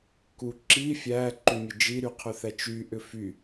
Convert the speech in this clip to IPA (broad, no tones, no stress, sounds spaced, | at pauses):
k u ǁ i fʲ æ ǃ y mʲ ə d͡ʒ i ɾ y qʰ ʏ θ æ t͡ʃ y ʔ ʏ f y